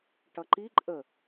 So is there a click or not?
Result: yes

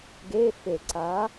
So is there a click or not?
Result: yes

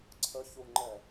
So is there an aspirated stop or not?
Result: yes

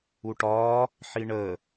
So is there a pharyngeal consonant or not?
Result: yes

